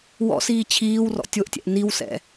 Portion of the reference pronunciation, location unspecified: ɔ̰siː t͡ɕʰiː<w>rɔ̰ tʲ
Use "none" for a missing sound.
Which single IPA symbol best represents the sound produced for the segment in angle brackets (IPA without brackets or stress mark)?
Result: w